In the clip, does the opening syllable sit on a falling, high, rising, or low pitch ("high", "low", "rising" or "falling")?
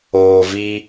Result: low